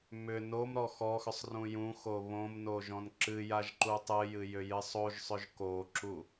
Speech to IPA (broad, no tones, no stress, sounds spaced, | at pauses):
m ʏ n o m ɾ ɔ x ɔ x ʏ sˤ r ũ j ũ x o β õ m n o ʒ ɔ̃ n ǁ ɨ j a ʒ ǃ u tˤ ɨ j ɨ j ʏ j ɨ sˤ o ʒ sˤ ʏ ʒ k o ǁ u